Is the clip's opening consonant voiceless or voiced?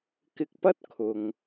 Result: voiceless